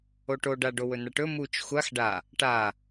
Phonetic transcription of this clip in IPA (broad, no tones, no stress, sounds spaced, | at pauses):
o ʈ o ɖ a ɖ o w ɵ n̪ a ʈ ɵ m u t͡ʃ xʷ a x ɖ a | ʈ a